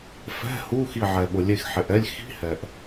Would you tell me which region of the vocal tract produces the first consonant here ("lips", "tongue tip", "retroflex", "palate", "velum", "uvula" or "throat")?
lips